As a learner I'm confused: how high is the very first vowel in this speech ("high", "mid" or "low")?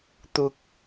high